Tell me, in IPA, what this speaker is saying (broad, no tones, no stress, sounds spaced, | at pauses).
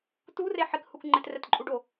t u r e ħ ɪ k h u k ŋ͡ǃ ɪ t r ɛ t ǃʼ u ɖ o